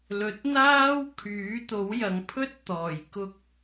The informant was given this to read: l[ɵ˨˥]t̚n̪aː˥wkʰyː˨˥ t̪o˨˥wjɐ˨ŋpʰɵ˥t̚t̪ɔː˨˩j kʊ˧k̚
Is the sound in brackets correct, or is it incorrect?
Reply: correct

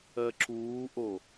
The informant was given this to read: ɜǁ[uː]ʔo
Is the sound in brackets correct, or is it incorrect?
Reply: correct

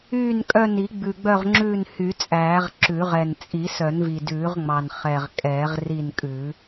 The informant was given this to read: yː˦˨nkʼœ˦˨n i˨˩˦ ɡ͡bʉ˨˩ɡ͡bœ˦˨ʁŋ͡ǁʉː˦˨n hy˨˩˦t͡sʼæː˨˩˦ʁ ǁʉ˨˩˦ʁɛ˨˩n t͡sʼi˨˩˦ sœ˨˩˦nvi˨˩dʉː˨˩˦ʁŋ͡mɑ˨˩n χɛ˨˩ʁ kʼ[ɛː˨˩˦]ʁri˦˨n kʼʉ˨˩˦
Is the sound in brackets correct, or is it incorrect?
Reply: correct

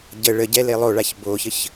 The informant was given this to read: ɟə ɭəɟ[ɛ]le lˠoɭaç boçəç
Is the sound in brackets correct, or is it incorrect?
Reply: correct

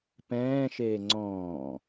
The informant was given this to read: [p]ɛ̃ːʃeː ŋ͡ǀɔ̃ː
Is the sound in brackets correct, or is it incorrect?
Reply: correct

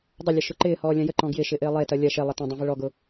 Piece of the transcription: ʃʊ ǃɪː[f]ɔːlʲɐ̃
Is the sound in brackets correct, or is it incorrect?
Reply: incorrect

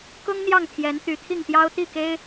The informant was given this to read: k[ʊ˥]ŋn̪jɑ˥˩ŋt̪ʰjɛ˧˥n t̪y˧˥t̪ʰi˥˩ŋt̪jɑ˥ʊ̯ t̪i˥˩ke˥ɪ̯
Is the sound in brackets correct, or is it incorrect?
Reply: correct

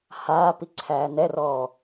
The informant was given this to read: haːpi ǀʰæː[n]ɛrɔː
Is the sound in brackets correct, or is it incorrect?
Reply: correct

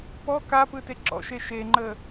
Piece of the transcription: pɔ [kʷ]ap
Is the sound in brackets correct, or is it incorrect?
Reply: incorrect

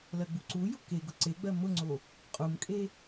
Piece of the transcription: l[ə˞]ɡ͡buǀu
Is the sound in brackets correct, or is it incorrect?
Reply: incorrect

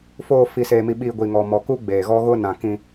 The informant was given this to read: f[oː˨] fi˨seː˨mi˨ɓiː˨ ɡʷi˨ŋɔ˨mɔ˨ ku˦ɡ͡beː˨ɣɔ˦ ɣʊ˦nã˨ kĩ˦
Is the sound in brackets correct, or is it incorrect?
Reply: correct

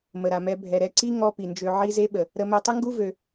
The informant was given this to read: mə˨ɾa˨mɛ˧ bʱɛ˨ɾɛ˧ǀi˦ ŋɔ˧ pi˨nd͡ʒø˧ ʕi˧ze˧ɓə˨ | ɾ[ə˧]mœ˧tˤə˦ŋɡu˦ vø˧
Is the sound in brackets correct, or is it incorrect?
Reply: correct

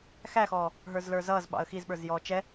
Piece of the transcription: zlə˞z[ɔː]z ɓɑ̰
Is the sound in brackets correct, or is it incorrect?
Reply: incorrect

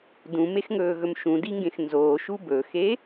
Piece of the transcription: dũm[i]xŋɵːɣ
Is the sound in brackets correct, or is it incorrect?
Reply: incorrect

